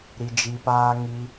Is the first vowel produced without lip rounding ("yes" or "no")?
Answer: yes